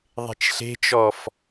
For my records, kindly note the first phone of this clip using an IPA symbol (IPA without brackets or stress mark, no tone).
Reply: ðˤ